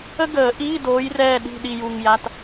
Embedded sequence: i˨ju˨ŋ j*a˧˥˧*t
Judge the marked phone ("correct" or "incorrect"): correct